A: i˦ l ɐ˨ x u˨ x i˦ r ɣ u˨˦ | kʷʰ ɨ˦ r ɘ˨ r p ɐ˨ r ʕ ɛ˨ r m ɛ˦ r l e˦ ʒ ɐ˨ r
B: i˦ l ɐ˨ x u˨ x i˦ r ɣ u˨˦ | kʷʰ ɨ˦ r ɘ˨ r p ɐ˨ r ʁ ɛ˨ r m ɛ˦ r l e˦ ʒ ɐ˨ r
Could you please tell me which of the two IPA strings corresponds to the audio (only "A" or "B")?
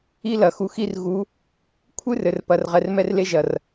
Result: B